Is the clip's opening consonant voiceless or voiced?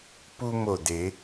voiceless